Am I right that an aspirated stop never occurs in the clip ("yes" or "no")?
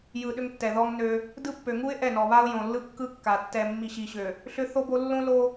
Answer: yes